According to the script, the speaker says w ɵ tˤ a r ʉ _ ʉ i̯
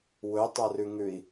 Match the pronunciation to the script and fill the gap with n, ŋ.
ŋ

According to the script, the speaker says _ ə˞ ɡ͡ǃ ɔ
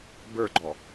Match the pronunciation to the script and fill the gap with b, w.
b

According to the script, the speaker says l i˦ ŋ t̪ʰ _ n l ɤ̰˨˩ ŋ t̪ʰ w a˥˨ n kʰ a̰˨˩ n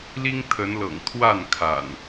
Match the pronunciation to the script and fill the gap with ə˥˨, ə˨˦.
ə˨˦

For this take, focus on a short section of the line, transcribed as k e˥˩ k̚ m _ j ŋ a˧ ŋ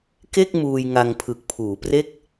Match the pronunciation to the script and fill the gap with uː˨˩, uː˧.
uː˧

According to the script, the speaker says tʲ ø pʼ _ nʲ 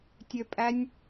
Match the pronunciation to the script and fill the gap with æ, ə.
æ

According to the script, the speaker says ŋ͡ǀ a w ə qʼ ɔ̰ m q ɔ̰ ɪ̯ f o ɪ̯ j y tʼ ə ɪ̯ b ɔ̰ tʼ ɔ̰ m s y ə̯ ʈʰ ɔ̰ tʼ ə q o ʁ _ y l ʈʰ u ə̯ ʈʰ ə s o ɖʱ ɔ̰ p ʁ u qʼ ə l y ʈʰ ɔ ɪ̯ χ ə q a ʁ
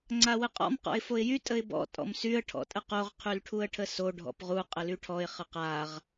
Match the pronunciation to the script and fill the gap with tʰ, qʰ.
qʰ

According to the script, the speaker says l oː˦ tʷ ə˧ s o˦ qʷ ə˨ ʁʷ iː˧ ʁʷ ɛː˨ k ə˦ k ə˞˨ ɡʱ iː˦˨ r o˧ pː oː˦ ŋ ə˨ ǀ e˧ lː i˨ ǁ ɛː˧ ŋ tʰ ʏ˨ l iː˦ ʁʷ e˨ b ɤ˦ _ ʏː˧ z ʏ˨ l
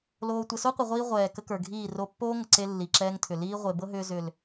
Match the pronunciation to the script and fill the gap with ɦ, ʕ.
ɦ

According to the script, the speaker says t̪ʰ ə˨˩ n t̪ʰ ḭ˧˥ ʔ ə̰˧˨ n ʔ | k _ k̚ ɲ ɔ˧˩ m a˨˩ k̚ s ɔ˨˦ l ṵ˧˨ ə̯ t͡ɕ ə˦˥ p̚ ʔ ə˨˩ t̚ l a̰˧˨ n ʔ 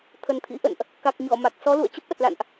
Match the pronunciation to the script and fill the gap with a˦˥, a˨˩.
a˨˩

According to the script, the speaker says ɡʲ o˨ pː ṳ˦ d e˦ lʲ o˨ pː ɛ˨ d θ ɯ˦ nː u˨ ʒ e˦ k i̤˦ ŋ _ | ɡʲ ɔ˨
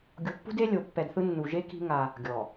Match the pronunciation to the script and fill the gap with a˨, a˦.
a˦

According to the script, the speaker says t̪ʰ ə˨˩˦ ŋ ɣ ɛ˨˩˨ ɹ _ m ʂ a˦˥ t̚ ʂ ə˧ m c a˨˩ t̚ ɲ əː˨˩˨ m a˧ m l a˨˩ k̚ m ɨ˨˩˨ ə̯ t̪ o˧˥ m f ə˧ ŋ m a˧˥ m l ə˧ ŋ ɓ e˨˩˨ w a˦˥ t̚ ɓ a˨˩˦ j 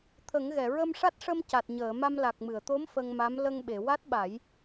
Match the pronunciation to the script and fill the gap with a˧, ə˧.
ə˧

